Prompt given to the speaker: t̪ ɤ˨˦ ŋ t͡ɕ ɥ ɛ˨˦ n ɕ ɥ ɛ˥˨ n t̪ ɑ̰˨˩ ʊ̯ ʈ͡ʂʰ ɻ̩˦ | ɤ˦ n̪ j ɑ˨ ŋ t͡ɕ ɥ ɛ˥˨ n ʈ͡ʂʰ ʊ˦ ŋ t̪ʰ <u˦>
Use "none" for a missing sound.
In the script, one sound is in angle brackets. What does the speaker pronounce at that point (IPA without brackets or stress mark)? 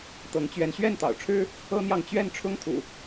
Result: ṵ˨˩